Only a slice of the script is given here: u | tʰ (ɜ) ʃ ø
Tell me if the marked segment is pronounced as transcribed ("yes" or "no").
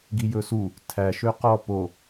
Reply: no